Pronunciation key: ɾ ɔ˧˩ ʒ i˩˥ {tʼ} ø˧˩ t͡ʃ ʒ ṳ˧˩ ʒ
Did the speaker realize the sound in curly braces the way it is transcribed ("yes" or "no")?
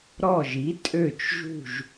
yes